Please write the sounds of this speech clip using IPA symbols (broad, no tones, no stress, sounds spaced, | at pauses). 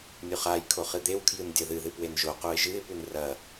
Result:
nʲ u χ a j kʰ o χ ɨ d̪ e w kʰ j ɨ n dʲ ɐ ð ɨ ð ɨ p w e n ʒ o q u ɪ̯ ʒ ɨ ɪ̯ p ʉ n r ɐ